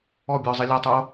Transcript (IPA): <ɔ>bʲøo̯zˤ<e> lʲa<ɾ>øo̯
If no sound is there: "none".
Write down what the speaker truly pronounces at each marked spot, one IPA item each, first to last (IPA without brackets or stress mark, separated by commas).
ɔ, i, tˤ